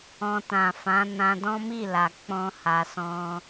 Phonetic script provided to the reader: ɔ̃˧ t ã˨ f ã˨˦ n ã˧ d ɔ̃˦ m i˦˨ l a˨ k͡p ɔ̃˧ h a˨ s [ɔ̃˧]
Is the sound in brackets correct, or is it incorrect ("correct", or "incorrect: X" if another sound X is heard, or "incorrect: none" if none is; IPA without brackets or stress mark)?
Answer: correct